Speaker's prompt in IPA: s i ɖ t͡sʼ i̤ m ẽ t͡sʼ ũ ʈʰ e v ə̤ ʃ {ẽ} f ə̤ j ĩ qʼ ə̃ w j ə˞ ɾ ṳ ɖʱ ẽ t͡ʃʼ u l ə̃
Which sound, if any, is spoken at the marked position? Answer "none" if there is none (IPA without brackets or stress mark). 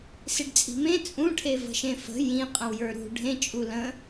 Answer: ẽ